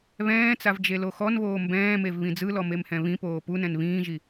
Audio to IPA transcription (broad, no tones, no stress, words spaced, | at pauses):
βɛ̃ːt͡sav d͡ʒeloxɔnβoː mbɛ̃ːmev βĩd͡zɯlɔ memhɛ̃βĩpoː punɛ̃n βĩːʒi